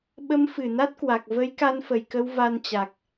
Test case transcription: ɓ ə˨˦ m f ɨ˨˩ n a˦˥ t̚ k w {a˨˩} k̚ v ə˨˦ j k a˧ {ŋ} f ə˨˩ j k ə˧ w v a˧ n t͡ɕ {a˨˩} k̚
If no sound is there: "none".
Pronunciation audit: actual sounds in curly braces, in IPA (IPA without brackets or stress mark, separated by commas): a˨˩, n, a˨˩